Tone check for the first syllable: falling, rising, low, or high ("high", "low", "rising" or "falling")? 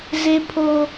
high